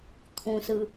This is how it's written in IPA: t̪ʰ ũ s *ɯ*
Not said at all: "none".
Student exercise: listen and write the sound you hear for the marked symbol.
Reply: ɯ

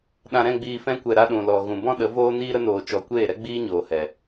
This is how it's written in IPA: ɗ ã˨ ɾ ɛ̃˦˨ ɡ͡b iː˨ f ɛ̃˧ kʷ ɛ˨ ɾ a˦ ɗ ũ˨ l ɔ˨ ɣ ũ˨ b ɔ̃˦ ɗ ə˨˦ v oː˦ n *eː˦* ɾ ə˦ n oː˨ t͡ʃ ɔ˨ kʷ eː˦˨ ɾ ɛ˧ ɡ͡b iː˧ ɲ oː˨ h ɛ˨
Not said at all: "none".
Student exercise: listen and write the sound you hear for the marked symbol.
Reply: iː˦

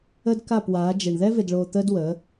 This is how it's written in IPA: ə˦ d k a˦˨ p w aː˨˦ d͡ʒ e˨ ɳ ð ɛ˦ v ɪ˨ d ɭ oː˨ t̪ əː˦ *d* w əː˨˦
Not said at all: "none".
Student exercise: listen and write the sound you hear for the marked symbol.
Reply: d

